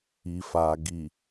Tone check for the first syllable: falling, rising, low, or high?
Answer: low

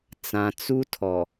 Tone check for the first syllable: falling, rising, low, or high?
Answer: low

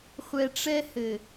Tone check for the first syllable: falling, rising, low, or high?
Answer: low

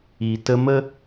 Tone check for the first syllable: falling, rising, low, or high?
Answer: low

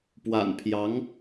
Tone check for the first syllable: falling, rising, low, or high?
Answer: low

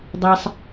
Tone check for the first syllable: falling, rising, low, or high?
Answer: low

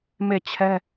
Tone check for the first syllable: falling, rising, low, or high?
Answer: falling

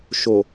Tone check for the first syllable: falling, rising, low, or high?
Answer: low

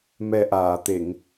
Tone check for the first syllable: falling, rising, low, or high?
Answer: low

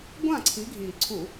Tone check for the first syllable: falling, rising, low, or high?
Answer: falling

